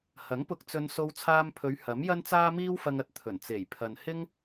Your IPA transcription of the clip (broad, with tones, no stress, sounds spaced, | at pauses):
h ɐ˨˥ ŋ p ʊ˧ k̚ t͡s ɵ˧ n s o˧ w t͡sʰ aː˧ m pʰ ɵ˨˧ ɥ h ɐ˨˥ m j ɐ˥ n t͡s aː˥ m iː˥ w f ɐ˧ ŋ ɐ˨ t̚ t̪ʰ ɵ˨˩ n t͡s e˨˩ j pʰ ɐ˨ n h ɪ˥ ŋ